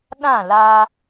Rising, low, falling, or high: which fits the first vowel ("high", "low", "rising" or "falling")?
falling